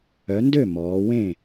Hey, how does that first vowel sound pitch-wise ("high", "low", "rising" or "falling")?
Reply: rising